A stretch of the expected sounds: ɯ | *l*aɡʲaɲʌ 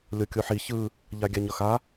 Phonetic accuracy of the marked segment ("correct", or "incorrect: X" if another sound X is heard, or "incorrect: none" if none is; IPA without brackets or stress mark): incorrect: ʎ